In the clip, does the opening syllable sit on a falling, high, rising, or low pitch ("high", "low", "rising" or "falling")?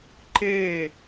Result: falling